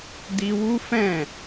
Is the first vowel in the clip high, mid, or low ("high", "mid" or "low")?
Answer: high